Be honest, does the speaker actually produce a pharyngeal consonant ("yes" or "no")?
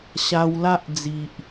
no